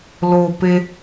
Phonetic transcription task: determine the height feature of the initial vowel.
mid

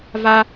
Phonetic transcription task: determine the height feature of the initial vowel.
low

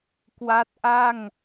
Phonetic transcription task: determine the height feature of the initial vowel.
low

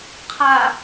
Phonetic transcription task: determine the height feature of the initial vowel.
low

